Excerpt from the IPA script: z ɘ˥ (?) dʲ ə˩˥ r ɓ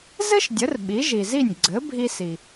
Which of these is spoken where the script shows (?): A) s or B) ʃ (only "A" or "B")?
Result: B